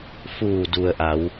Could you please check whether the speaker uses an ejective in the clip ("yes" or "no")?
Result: no